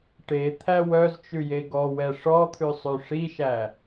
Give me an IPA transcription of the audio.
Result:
ʈ e t̪ʰ æ w œ z t͡ʃ ʉ j e ɡ ɔ w ɛ ʂ ɔ t̪ʰ ʉ sˤ ʉ ʂ i ʃ æ

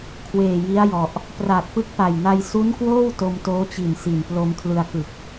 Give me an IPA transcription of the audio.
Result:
kʰ w eː˨˩ j i˦˥ a̯ j ɔ˨˩ ʔ | p r aː˨˩ t̚ p ɯ˦˥ k̚ p a˨˩ j n a˧ j s u˦˥ n k w oː˥˩ w t o˧ m t oː˦˥ t͡ɕ i˨˩ n s i˨˩ n p l o˧ m kʰ l ɯ˧ a̯ k ɯ˨˩ k̚

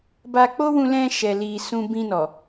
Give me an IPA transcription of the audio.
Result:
b a˧ k͡p o˦ w ũ˧ l ɛ̃˧ ʃ ɛ˨ l i˨ s ũ˧ b ĩ˧ n ɔ˨

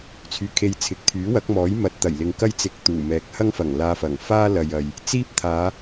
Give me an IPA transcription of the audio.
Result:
t͡sʰ yː˨ kʰ e˧ j t͡sʰ ɪ˨ k̚ t̪ʰ yː˨˥ w ɐ˨˥ k̚ m ɔː˨˥ j m ɐ˧ t̚ t̪ ɐ˨˩ j l ɪ˨ ŋ k ɐ˥ j t͡s ɪ˧ k̚ t̪ uː˨˩ m ɛː˨˥ k̚ h ɐ˥ ŋ f ɐ˨˩ ŋ l aː˧ f ɐ˨˩ ŋ f aː˥ l ɐ˨ j ɐ˨ j | t͡s iː˥ p̚ t̪ʰ aː˨˧

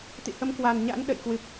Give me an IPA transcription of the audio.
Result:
t̪ ḭ˧˨ h ə˨˦ m k w a˨˩ n ɲ a̰˧˥ n ɗ ə̰˧˨ j k w ɨ˨˩ p̚

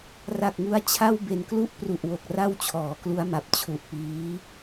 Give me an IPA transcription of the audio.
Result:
r a˨˩ k̚ ŋ u˧ a̯ t͡ɕʰ a˥˩ w b e˨˩ n k l u˦˥ ʔ p r u˨˩ ʔ w o˨˩ k̚ r a˥˩ w t͡ɕʰ ɔː˩˦ k l u˦˥ a̯ m a˨˩ p̚ t͡ɕʰ u˨˩ ʔ p iː˦˥

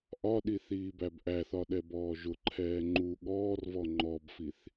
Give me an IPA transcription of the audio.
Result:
ʔ ɒ ɗ i θ iː b æ b ʔ æ θ ɒ ɗ ɛ b ɔː ʒ ʊ ǃʰ ɛː ŋ͡ǃ u ɠ ɔː r v ɔ ŋ͡ǃ ɔ b f i θ

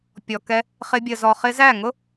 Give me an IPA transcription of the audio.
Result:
pʲ ɔ˨ k ɛ˧ | χ ɪ˧ bʲ ə˨ z ɔ˨ χ ɪ˧ z æ˦˨ ŋ ʊ˦

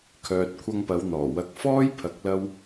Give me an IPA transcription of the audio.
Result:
kʰ œː˨ t̚ kʷʰ ɐ˧ ŋ p ɐ˨˧ w n̪ ɔː˨˩ w ɐ˨˥ k̚ f ɔː˥ j pʰ ɐ˨˥ k̚ l ɐ˥ w

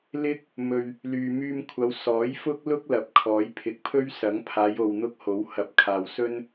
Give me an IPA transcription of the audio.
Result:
l ɪ˥ k̚ | m ɵ˨ ɥ | l yː˨ m yː˧ m kʷʰ ɐ˨˧ w s ɔː˨˥ j f ʊ˥ k̚ l ʊ˥ k̚ l ɐ˨˥ p̚ kʰ ɔː˨˥ j pʰ ɪ˨ k̚ pʰ ɵ˥ ɥ s ɐ˨˥ ŋ pʰ aː˨˧ j o˨ w n̪ ʊ˥ k̚ h o˨˥ w h ɐ˨˥ p̚ kʰ aː˨ w s ɵ˥ n

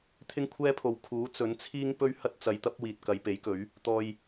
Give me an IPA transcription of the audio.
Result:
t̪ʰ ɪ˥ ŋ kʷʰ ɛː˥ pʰ o˨ w kʰ uː˨˥ t͡s ɵ˨˥ n t͡sʰ iː˥ ŋ p ɵ˥ ɥ h ɐ˥ t̚ t͡s ɐ˨˧ j t̪ ɐ˥ p̚ w iː˨ t̚ k ɐ˨˧ j p e˨˥ j k ɵ˨˥ ɥ | t̪ ɔː˨ j

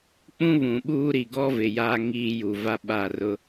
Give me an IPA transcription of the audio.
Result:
k͡p ũ˦ β ũ˨ ɓ uː˦ ɾ i˨ ɡ ɔ˦ v ɪ˨ j a˦ ŋ iː˦ j u˨ v a˦ ɓ a˦˨ r ʊ˦

